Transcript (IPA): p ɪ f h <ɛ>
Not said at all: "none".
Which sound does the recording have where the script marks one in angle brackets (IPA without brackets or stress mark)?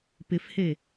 e